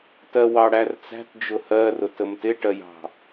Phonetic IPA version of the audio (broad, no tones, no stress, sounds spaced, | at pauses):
t ɜ w ɑ ɽ æ r t͡s æ̤ t d͡ʒ ʊ h ɜ r ʊ t ə m t ɪ ʈ ɜ j ɑ̤